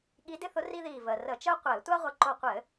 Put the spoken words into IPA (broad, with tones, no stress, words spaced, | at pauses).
ɠi˧˥dɪ˥θʊ˧˥ ri˥ðiː˧˩vəː˩ rə˧˩˧t͡ʃəː˥ qʷɘː˧˩˧tʷa˥ʁʷə˧˩ ǃo˧˩qʷɘː˧˩˧